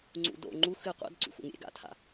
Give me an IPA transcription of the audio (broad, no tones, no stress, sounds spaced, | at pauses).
ŋ͡ǀ ṵ d o̰ ŋ͡ǃ u x ɨ qʷ a̰ d ǀ ṵ x ṵ ŋ ɾʲ ḛ ɡ a̰ tʰ a̰